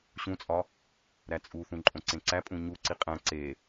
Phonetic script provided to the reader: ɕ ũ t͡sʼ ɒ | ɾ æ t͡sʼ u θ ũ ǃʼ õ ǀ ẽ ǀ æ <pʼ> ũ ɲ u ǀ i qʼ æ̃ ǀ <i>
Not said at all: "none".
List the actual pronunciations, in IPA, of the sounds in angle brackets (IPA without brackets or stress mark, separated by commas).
pʼ, e